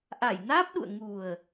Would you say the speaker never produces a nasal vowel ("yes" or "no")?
yes